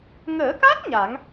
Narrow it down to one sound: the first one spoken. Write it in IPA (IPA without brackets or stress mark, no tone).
ŋ